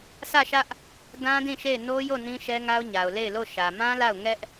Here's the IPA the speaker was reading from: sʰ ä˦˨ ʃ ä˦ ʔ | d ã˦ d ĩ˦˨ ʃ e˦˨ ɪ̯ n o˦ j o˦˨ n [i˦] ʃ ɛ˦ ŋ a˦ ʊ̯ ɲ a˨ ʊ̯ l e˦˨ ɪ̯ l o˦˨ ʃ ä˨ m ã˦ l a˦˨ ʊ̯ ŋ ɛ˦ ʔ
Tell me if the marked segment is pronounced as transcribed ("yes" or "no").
no